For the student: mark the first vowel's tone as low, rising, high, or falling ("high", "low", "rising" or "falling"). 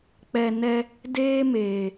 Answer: low